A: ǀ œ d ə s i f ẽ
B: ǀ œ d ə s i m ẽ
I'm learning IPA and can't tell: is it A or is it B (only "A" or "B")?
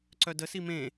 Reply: B